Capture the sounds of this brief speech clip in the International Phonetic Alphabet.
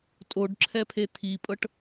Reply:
tʼ o ɖ ǁʰ ɛ pʰ e t̪ʰ i pʼ ɤ ʈ

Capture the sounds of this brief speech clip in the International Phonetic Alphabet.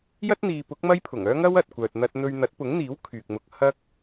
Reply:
j ɐ˥ t̚ n̪ iː˨ p ʊ˨˥ k̚ m ɐ˥ j pʰ ʊ˨˩ ŋ œː˥ ŋ ɐ˥ w ɐ˨ t̚ kʷ œː˨ t̚ n̪ ɐ˧ t̚ n̪ ɵ˧ ɥ n̪ ɐ˨˥ t̚ p ʊ˨˥ ŋ n̪ iː˨˥ w kʰ yː˨ k̚ m ʊ˧ k̚ h ɐ˥ k̚

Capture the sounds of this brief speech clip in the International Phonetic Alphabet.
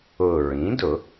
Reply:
ʊ˨˩ ɹ ĩ˩˥ d ʊ˨˩˦

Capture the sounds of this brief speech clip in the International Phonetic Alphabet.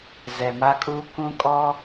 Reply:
z ɛ˨ m a˦ kʼ uː˦ k ũ˦ kʼ ɔ˦

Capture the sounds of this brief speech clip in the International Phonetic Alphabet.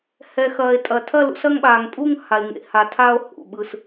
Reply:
h ɛ˩ x ɐː˩ e̯ tʼ ɐ˩ tʰ ɐ˥˨ l ṵ˥˨ s ɐ˥˨ ŋ ɓ aː˩ ŋ pʼ uː˥˨ ŋ h a˩ e̯ ŋ ḛ˩ h a˩ tʰ a˥˨ o̯ h ṵ˩ ɓ ɯ˩ s

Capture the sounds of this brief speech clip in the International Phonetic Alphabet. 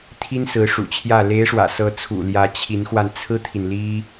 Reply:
t̪ʰ i˥ n s ɹ̩˧˥ ʂ ṵ˨˩ t͡ɕʰ j ä˥˩ l e˧˥ ɪ̯ ʂ w ä̰˨˩ s ɤ˧˥ t͡sʰ ṵ˨˩ l j ä˧˥ t͡ɕʰ i˧˥ n x w a˧ n t͡sʰ ɹ̩˥ t̪ʰ i˨ n l i˥

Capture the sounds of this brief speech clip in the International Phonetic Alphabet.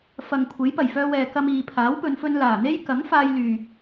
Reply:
f ɐ˨ ŋ kʷʰ e˨˥ j p ɐ˨˩ j f œː˧ w ɛː˨ k ɐ˧ m iː˨ pʰ aː˨˥ w p ɵ˨˧ n f ɵ˧ n l aː˨˩ n̪ e˥ j k ɐ˨˥ ŋ f aː˧ j l yː˨

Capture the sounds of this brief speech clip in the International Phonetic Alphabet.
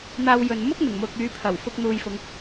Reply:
n̪ aː˧ w j ɵ˨ n m ʊ˥ k̚ n̪ ɪ˨˩ ŋ m ʊ˧ k̚ yː˨˧ pʰ ɐ˨˩ w f ʊ˧ k̚ n̪ uː˨ j f ʊ˨˧ ŋ

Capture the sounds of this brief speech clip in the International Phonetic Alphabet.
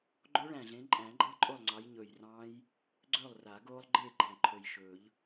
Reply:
ɡ͡ǃ o˦˥ ɭ æ̃˨˩ ɮ ẽ˨˦ ǃʼ æ̃˨˩˦ ɡ͡ǃ ɤ˦˥ ǃʼ o˥˨ lˠ ŋ͡ǀ ɑ˨˦ j ɲ ɵ˨˩ j r ɑ̃ː˦˥ j | ɡ͡ǀ ɵː˥˨ lˠ r a˨˩˦ ɡ oː˦˥ lˠ ɡ͡ǃ eː˥˨ ɡ͡ǃ æ̃˨˩ ǃʰ ɵ˨˩ j ʃ ɵː˨˩˦ ʎ

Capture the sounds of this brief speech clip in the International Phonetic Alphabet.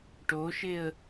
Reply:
ʈ o ʃ e ə̯

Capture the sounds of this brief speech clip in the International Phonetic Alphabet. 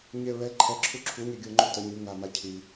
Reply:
ɲ e ɹ ɛ ǃʰ ɛ ǁʰ u ǁʰ u ɲ e ɡʲ o ŋ͡ǃ u t ə ɲ y ŋ a m a cʰ i

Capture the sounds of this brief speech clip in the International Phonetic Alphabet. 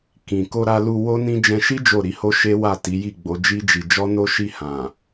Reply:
k ĩ˨ k o˧ ɾ a˧ l u˧ w o˦ n ĩ˦ d͡ʒ ɛ̃˧ ʃ i˦ d͡ʒ o˦˨ ɾ i˨˦ h o˦ ʃ e˦ w a˦˨ t i˨˦ j i˦˨ ɡ͡b o˨˦ d͡ʒ i˦ d͡ʒ i˧ d͡ʒ ɔ˦ n o˦ ʃ i˦˨ h ã˨

